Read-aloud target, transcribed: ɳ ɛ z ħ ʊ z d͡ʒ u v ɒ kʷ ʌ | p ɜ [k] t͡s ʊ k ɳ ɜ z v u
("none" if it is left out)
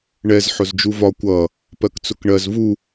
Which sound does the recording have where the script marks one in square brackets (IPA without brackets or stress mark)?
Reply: k